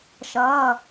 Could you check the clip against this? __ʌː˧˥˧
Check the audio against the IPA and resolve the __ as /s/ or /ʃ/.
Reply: ʃ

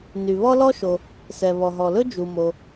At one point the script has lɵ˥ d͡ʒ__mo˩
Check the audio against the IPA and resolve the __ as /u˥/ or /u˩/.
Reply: u˩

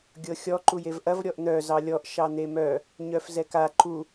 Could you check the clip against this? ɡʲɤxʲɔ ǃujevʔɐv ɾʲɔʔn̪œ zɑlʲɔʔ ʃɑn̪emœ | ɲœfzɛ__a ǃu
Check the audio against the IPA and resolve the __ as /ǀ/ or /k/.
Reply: k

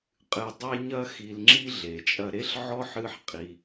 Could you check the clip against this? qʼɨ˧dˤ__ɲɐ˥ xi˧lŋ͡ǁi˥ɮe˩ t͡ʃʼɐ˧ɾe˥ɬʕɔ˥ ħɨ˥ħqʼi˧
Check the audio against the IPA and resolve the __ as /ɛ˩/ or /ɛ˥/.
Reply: ɛ˥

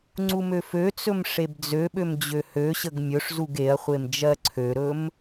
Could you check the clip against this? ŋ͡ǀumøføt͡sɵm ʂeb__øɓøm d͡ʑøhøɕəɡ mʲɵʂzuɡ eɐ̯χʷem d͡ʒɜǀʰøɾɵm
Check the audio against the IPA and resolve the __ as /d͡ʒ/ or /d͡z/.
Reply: d͡z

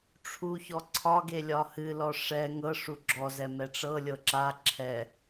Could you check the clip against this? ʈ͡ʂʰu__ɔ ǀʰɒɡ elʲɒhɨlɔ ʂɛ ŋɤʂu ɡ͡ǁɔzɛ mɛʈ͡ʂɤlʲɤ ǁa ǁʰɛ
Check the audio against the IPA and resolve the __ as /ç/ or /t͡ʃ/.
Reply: ç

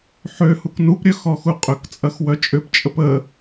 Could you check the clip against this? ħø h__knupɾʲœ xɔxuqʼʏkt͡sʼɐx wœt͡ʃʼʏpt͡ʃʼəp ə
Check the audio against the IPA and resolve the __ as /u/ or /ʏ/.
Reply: u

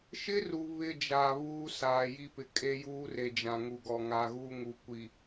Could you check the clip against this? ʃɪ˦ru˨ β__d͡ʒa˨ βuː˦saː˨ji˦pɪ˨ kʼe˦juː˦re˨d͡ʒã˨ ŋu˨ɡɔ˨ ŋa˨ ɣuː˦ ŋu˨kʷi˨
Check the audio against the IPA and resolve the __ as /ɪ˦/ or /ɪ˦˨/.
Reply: ɪ˦˨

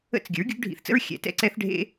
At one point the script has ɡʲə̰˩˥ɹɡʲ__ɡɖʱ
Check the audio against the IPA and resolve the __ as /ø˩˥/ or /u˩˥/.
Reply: u˩˥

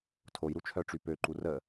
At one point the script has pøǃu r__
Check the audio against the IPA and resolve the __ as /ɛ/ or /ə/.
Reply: ə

